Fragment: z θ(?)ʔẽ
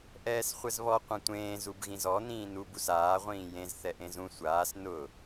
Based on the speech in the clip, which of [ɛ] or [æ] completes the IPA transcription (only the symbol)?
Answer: ɛ